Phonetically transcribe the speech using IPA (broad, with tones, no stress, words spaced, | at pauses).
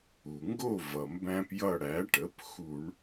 u˩ŋɡo˦˨ vʌ˩mbæ̃˦p jʌ˦˨ɽæ˩˥ʈə˩˥p xu˧˩˧ɳ